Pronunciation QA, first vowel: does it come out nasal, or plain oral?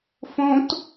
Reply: nasal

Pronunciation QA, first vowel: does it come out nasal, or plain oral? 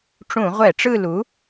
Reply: nasal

